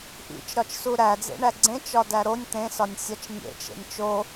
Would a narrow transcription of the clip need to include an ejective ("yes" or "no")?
no